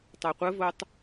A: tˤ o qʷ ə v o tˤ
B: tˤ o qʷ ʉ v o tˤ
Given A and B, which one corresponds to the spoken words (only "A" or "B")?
A